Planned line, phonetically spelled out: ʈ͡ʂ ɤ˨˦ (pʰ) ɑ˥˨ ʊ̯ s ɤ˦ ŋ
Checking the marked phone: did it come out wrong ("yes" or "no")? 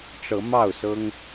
yes